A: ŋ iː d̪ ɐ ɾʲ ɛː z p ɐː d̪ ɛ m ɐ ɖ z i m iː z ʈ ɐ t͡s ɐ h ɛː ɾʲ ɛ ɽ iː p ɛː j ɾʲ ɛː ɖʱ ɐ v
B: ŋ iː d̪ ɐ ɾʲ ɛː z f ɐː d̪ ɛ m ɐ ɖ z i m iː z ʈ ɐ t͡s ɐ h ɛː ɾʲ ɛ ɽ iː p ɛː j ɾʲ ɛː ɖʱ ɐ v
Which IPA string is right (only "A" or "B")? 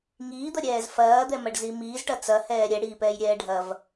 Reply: B